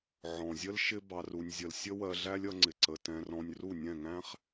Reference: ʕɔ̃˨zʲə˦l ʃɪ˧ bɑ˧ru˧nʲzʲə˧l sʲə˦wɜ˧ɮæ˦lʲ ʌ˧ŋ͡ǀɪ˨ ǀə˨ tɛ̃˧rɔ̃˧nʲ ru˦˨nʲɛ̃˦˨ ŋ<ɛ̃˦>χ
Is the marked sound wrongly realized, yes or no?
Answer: yes